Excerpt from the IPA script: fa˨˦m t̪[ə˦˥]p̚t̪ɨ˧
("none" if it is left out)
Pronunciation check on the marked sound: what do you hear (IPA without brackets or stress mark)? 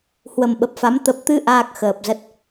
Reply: ə˨˩